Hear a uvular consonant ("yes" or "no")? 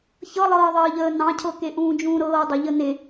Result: no